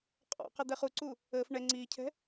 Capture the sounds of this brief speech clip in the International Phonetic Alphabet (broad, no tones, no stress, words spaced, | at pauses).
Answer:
qʼɔ̰qɛ d̪ɛχuǀu | əːf ɳɛ ŋ͡ǀiːcʰɛ̤